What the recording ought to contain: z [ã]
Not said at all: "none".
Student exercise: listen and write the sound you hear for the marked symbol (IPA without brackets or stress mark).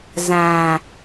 ã